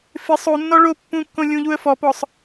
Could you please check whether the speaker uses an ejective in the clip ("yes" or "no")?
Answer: no